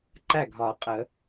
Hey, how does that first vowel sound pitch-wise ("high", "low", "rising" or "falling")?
falling